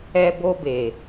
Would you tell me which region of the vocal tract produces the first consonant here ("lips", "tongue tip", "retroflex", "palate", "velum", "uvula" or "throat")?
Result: lips